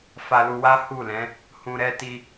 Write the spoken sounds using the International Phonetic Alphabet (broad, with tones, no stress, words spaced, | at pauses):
fa˧lu˧wa˦ hu˦˨lɛ̃˨˦ | hũ˧ɾɛ˦ ti˦